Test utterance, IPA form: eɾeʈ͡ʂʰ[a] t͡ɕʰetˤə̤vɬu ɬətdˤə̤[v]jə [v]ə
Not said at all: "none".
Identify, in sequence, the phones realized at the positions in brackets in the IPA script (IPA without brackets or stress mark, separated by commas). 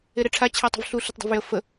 a, v, f